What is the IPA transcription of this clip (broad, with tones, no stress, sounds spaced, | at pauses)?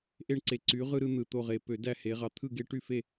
ʔ e˥˨ ɳ ǀ e˧˩ ǀ y˨˦ ʁ ɯ˦ ɾ ɯ˦ n̪ ɯ˧˩ t̪ o˥˨ ʁ e˧˩ p ø˧˩˧ d æ˥˨ h e˨˦ ʁ ɑ˨˦ t̪ʰ ɯ˥˨ ɡ e˦ ʈ y˥˨ f e˥˨